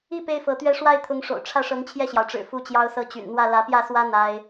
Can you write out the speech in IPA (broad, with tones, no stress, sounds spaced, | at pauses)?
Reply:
i˥˩ p e˥ ɪ̯ f ɤ˧˥ t̪ ɥ ɛ˥ ʂ w a˥˩ ɪ̯ t̪ʰ ʊ˧˥ ŋ ʂ o̰˨˩ ʊ̯ ʈ͡ʂʰ ä˥˩ ʂ ɤ˧˥ ŋ t͡ɕʰ j ɛ˥˩ ɕ j ɑ˩ ʊ̯ ʈ͡ʂ ɻ̩˨˩ f u˥˩ t͡ɕ j ɑ˥ ʊ̯ s ɤ˥ t͡ɕ y̰˨˩ n n̪ w ä˥˩ l ä˧˥ p j ä˥˩ s w ä˥ n̪ a˥ ɪ̯